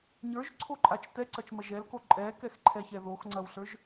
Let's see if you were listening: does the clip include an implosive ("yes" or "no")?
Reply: no